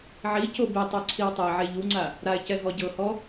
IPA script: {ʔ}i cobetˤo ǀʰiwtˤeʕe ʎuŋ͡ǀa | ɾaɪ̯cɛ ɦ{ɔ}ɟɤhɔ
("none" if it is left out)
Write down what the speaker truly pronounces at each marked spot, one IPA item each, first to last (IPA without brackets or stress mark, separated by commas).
ʕ, ɔ